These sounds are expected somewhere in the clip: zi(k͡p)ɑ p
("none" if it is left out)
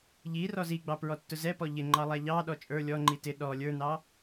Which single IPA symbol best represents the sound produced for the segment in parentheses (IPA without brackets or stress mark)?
ɡ͡b